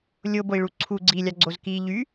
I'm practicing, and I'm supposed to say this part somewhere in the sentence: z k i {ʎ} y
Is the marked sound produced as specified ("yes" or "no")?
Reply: yes